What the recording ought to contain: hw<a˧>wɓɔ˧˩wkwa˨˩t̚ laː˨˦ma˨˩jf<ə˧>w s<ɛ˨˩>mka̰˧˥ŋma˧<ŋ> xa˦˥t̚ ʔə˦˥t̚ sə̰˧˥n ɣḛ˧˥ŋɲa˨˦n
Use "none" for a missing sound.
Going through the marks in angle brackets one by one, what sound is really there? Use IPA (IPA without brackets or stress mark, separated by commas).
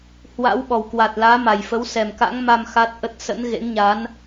a̰˧˥, ə˨˦, ɛ˨˩, m